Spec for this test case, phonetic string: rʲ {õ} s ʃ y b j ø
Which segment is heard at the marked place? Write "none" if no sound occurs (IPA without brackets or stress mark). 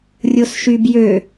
o